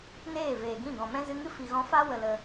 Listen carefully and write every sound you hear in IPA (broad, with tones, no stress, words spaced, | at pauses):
neː˦˨ veː˨ɡĩ˦˨ɡɔ̃˨mɛ̃˦ zɨ˧ŋɨ˦fi˨ɣɔ̃˧ fa˦ wə˧lə˧